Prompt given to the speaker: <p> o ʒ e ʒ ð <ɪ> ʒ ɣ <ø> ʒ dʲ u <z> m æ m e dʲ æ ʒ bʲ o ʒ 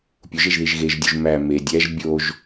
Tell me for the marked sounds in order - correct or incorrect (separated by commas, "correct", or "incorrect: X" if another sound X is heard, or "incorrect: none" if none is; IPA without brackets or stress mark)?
incorrect: pʲ, incorrect: i, incorrect: e, incorrect: ʒ